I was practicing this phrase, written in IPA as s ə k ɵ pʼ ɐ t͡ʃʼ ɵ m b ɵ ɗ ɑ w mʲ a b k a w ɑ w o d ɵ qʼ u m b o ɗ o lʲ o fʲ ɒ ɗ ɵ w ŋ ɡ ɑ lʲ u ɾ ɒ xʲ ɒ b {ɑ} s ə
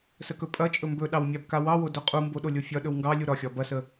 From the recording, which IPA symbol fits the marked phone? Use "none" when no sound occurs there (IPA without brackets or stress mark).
ɐ